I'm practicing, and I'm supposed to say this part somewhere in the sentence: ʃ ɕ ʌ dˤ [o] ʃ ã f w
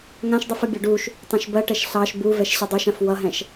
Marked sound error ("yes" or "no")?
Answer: yes